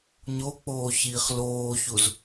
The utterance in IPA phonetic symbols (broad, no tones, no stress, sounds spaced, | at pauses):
ɲ o k͡p oː ç iː χ l oː ç u z